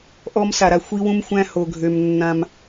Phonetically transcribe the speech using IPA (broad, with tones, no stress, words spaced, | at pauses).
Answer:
ʔɔ˧msa˩ɾa˩ xʷi˧wũ˧mxʷæ̃˧ ho˩ɡʱø˩m nːã˩m